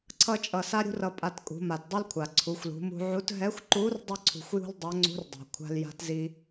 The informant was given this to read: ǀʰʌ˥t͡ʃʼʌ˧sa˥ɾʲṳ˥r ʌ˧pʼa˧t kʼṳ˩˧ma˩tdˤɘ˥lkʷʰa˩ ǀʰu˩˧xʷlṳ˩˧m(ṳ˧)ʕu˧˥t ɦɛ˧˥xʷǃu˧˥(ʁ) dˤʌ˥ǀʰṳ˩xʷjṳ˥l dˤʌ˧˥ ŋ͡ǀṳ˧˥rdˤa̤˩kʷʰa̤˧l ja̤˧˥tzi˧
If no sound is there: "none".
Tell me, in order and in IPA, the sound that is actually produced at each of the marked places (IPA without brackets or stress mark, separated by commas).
ṳ˧, r